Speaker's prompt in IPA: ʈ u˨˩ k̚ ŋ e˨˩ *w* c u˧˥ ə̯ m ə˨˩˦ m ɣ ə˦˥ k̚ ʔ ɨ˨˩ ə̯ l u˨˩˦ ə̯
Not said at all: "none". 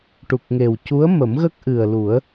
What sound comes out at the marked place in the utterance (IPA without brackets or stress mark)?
w